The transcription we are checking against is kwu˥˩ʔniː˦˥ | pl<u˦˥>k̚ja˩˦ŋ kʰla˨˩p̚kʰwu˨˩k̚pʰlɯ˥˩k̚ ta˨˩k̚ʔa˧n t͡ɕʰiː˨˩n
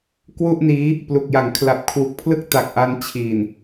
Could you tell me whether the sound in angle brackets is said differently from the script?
yes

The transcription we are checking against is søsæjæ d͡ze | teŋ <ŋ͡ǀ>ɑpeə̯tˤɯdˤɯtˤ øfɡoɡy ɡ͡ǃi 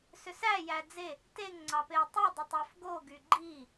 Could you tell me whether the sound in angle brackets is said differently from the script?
no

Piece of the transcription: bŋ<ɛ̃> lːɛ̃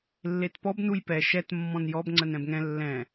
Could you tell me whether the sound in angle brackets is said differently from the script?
no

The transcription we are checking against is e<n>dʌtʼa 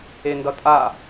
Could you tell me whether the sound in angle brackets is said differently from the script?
no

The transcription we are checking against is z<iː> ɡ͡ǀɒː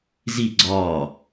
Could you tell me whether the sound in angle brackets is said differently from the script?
yes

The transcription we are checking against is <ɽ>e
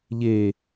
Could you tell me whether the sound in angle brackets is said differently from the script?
yes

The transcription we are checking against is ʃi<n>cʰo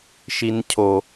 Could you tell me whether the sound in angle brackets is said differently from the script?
no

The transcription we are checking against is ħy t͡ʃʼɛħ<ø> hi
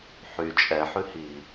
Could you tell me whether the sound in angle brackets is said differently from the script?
yes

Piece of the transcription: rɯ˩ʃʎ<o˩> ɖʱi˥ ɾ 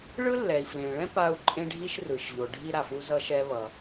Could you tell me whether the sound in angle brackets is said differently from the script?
no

